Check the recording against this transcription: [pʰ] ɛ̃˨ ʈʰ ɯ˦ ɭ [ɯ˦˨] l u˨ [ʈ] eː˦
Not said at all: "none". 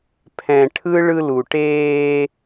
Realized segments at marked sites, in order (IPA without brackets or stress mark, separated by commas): pʰ, ɯ˦, ʈ